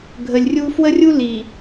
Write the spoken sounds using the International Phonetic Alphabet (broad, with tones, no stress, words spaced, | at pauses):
ɡʱə˨lʲrʲu˦ fwə˦rʲu˦ li˨